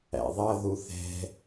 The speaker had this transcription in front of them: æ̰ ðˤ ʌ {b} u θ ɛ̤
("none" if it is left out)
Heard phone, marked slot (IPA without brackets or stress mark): ð